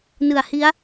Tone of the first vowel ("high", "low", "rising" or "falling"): low